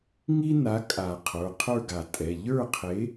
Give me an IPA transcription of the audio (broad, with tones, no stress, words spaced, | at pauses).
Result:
ŋi˥na˨˥kʼa˨˩˦ qʰə˞˩˧˩qʰə˞˥˨ɡa˨˩˦ tʼɛ˩˧˩ ʎə˞˥˨qʰe˨˥